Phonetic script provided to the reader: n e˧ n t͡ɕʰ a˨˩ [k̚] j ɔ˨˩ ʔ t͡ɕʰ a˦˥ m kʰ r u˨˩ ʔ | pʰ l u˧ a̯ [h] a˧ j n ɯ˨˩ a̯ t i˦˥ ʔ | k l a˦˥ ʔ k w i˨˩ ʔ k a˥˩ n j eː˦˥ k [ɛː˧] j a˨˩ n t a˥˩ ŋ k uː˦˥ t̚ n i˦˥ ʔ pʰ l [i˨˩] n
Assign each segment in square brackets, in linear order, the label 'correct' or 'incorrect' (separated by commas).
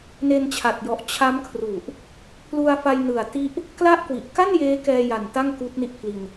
incorrect, incorrect, correct, incorrect